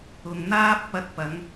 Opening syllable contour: low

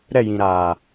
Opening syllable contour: falling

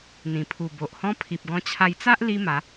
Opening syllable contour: low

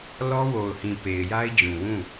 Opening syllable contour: high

